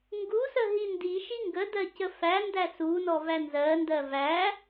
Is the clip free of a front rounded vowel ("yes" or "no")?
yes